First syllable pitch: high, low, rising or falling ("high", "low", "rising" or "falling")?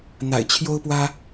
low